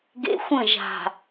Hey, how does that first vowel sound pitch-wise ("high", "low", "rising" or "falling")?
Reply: high